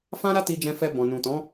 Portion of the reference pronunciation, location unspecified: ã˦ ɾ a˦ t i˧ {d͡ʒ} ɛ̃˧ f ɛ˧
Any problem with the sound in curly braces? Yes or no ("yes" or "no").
no